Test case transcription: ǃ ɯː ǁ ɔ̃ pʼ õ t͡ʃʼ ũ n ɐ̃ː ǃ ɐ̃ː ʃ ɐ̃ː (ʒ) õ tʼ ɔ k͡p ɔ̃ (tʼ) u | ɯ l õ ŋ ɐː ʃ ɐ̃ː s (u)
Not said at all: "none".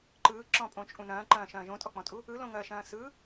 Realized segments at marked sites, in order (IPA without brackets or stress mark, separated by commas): ʒ, tʼ, ɯ